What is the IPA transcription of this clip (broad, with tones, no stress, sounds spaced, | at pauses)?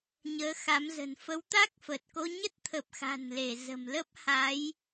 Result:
ɲ əː˨˦ x a˨˦ m z ə̤˨˩ n f ə˨˦ w t̪ a˦˥ k̚ f ə˨˩ t̚ k o˧ ɲ ə˦˥ t̚ t̪ʰ ə˨˩ p̚ x a̤˨˩ n l e˧˩ z ə̤˨˩ m l ə˦˥ p̚ h a˨˦ j